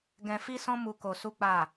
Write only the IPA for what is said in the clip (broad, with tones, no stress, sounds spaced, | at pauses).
ɡ ɛ̃˧ f i˦ s ɔ̃˦ m u˧ k o˧ s u˦ k͡p a˦˨